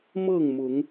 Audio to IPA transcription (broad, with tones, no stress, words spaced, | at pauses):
mɤ˥˨ŋmʊ˨˦ŋ